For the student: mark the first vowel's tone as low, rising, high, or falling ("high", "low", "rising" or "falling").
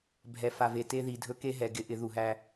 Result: low